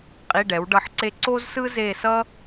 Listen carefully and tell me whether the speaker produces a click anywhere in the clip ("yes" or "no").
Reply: yes